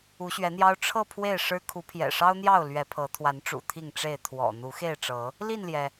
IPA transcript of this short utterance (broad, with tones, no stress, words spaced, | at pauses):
u˨˦ɕɥɛ˨˦n̪jɑ˦ʊ̯ ʈ͡ʂʰɤ˥˨ pʰwe˥˨ɪ̯ʂɻ̩˦ kʰu˨˦pʰjɛ̰˨˩ʂɑ˦ʊ̯n̪jɑ˥˨ʊ̯ lɥɛ˨˦pʰɤ˨˦ t̪ʰwa˨˦nʈ͡ʂṵ˨˩ t̪ʰi˥˨ŋʈ͡ʂe˥˨ɪ̯ t̪ʰwɔ̰˨˩ n̪u˨˦xe˥˨ɪ̯ʈ͡ʂɤ˨˦ | li˥˨nljɛ˩